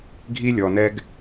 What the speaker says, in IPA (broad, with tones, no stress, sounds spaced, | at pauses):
ɡʱ i˦ lʲ ɔ˨ n ɛ˦ ɡ